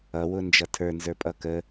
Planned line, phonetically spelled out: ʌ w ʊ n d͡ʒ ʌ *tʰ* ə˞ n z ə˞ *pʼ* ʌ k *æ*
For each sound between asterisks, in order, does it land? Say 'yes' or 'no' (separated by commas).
yes, yes, no